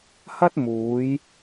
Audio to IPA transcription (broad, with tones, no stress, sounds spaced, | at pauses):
h ɐ˥ t̚ m uː˨˧ j